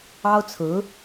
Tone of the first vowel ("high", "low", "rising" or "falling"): high